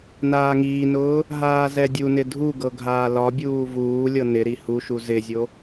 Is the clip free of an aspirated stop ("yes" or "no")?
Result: yes